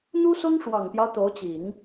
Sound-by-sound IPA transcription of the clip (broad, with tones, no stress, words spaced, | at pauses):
n̪u˥sʊ˥ŋ ʂwɑ˨˩ŋpjɑ˦ʊ̯ t̪o˧˥ʊ̯t͡ɕi˨˩˦ŋ